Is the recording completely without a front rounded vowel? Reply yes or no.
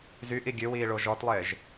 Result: no